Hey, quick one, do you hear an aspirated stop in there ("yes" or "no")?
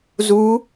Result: no